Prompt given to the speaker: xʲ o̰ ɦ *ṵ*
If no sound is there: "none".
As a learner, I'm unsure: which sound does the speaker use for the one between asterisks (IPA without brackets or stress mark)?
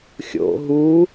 u